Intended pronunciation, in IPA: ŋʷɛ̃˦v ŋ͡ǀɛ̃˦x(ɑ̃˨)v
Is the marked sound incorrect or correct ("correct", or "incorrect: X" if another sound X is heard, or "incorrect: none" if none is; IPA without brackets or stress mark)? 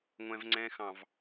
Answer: correct